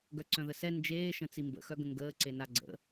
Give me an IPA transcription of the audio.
ɡœǀœ̃ðəsɛ nd͡ʒeː ʃə̃t͡simbə̰ xœɡə̃ŋɡəː ǀenaɡ͡ǀə̰

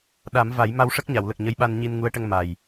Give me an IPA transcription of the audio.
ɗa˨˩˦mva˨˩˦j ma˧wʂə˦˥k̚ɲa˨˩˨wlə˨˩k̚ ɲə˧˥jɓa˧n ɲi˧nŋu˧˥ə̯ʈə˧ŋ ma˨˩j

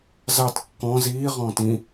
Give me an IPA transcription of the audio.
zɑt kːɔ̃ ziː ʁɔ̃ːtĩ

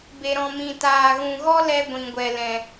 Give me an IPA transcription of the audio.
be˨ɾɔ̃˨mĩ˨ taː˨ɣũ˨ɣɔ˦ lɛ˧ ɡʷĩ˨ɡʷɛ˨lɛ̃˨

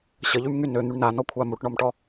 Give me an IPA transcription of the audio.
ɕəʎymŋy nøn̪yɳ nanɔkʷʰa muʈɳɔmʈɔ

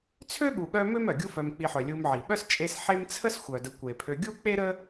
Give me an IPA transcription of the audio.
t͡sʰø˥ɠu˨ɠœ˦ mø˥mœ˩ɡʲu˦ fœ˨mk͡pi˨ħœ˩ lʲu˨mʕi˩ɓœ˦s t͡ʃʼe˦s ħe˦mt͡sʰə˥s xʷœ˩də˨ kʷe˩pʰø˨ɡʲu˥ k͡pe˥ɾə˥

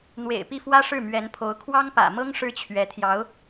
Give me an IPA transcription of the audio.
n̪wḛ˨˩ɪ̯ pi˥˩ fwä˥ʂɻ̩˥˩ mɥɛ˧˥npʰo˧˥ʊ̯ kʰwɑ˥ŋpä̰˨˩mɤ˥ŋ ʂɻ̩˥t͡ɕʰɥɛ˧˥t̪ʰjɑ˧˥ʊ̯

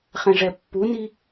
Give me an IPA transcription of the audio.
χɛ̃ʐɛpːuni

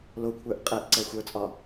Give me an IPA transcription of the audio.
lokʷʰə˞ʔ qʼeʔ ǀɛxʷə˞t͡sʼɒ

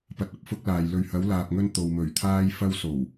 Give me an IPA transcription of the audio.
pɐ˨t̚ɐ˨p̚fʊ˧k̚ laː˨jlɵ˧ɥ hɐ˨˧wlaː˨p̚ŋɵ˧n t̪o˨wmɵ˨˩ɥ t̪ʰaː˥j fɐ˧w so˨˩w

